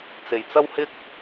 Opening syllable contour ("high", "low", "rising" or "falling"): low